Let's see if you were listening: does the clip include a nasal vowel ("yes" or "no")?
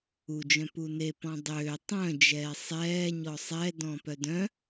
yes